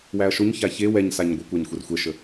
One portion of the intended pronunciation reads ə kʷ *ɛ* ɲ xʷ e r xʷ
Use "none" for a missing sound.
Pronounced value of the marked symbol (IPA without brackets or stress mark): æ